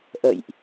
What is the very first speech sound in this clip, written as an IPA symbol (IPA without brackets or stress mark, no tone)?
ʔ